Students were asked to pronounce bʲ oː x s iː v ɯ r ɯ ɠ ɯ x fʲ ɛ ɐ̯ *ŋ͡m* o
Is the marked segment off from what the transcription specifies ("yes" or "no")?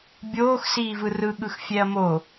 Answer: yes